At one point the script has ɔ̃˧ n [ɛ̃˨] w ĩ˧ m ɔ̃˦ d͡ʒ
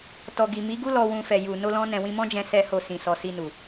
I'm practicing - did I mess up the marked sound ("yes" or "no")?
no